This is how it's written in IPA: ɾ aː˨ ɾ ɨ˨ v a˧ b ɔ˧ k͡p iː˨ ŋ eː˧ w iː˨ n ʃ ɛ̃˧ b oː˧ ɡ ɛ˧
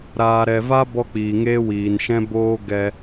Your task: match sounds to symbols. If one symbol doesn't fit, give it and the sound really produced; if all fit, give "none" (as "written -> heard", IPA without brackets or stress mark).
ɨ˨ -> ɛ˨